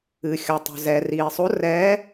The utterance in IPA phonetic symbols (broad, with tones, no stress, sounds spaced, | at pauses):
ɨ˩ xʲ ɔ˩ tˤ o̤˩ z ɛː˩ r iː˩ sˤ o˨˥ r ɛː˨˥